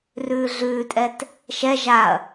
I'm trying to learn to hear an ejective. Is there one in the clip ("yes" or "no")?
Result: yes